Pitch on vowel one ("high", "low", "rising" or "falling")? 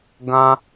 high